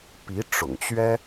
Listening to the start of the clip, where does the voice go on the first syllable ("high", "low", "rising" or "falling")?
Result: rising